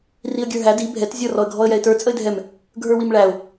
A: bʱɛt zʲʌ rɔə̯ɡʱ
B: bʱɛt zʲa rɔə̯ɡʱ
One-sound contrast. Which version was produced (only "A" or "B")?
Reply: A